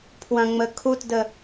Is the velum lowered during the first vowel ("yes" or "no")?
yes